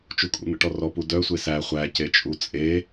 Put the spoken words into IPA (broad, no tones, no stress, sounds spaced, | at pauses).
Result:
t͡ʃ u kʼ ṵ n̪ ə̰ ʈ ɔ r ɔ p u d œ sʷ e s æ χʷ æ c e t͡ʃʼ u t͡sʼ e